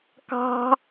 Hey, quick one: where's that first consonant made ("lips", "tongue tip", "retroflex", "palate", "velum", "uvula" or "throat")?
velum